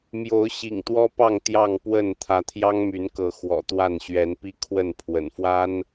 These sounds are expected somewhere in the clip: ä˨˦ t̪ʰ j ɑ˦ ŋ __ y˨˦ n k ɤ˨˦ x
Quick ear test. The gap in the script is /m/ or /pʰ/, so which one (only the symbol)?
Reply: m